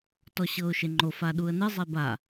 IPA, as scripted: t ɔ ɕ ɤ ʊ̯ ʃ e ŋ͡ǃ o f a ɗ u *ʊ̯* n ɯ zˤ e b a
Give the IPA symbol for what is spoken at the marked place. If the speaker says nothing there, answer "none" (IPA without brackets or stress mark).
ə̯